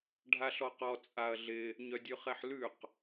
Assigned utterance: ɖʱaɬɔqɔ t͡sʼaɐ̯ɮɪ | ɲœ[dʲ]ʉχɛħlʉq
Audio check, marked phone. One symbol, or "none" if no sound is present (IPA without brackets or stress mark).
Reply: dʲ